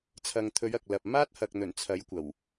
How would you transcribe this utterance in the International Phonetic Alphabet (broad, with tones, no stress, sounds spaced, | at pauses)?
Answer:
t͡sʰ ɐ˨ ŋ t̪ʰ ɵ˨˧ ɥ ɐ˨ k̚ l ɐ˨ p̚ m aː˥ t̚ h ɐ˨ k̚ n̪ ɵ˨˩ n t͡sʰ ɐ˨˥ j kʷ ɐ˨˩ w